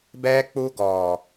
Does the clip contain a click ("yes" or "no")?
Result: no